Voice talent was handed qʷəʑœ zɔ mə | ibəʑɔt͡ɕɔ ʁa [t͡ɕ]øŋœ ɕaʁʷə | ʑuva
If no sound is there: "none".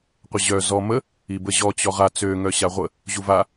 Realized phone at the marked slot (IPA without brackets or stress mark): t͡s